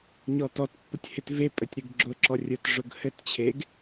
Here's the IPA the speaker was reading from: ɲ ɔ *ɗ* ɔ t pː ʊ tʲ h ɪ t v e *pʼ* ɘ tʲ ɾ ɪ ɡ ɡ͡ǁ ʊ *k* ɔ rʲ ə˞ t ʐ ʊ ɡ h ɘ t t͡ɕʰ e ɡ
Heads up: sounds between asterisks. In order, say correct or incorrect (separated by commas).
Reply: incorrect, correct, incorrect